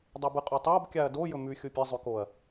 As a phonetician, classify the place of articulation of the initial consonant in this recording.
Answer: alveolar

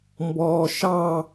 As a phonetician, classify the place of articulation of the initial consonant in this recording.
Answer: labial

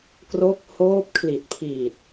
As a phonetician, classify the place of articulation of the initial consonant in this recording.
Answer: velar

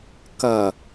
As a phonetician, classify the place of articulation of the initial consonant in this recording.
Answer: velar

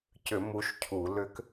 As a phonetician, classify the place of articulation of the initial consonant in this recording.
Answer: palatal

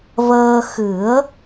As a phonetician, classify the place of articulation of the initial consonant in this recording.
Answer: labial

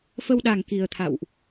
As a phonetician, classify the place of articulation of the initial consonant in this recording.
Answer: labial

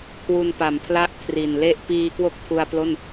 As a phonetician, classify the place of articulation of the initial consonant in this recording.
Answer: velar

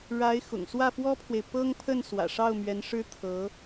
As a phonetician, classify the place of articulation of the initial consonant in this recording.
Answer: retroflex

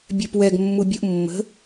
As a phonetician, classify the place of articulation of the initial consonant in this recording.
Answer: labial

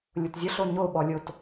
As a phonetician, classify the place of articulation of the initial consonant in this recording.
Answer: alveolar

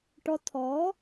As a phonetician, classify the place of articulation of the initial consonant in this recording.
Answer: retroflex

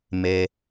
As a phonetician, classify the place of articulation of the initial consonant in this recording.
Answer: labial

